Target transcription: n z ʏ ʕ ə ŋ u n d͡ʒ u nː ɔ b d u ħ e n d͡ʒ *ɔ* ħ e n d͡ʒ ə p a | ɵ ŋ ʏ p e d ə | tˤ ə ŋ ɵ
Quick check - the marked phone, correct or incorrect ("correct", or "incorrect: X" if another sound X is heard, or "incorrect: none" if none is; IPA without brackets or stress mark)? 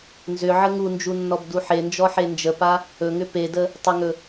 correct